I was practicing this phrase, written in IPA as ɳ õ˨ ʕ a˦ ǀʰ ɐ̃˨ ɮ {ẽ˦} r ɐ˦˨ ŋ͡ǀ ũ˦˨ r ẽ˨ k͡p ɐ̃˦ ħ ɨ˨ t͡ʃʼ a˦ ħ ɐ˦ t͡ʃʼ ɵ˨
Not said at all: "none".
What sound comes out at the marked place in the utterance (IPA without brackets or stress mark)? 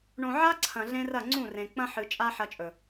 ẽ˦